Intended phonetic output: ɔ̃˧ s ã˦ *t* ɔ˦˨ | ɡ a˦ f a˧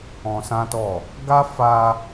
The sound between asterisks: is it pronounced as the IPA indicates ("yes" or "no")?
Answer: yes